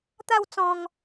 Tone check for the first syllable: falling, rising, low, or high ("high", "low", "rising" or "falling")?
falling